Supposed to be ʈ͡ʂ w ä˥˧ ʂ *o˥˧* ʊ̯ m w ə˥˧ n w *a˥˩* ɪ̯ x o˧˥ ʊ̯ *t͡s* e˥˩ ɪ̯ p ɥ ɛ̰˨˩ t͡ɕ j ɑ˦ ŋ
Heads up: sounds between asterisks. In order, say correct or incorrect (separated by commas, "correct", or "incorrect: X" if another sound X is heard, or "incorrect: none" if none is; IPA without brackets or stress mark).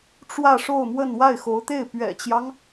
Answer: correct, correct, incorrect: t̪